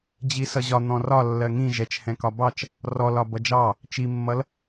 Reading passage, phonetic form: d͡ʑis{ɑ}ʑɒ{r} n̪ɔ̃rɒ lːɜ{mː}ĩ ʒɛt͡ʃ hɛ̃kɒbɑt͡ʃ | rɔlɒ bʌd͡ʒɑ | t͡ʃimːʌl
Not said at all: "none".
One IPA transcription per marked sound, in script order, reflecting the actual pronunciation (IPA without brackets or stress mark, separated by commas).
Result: ʌ, none, ŋ